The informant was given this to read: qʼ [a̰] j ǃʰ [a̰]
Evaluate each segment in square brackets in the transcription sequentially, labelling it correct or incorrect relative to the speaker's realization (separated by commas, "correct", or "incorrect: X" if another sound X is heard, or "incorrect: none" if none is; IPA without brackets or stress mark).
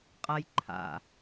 incorrect: a, correct